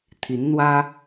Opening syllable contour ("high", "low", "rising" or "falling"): rising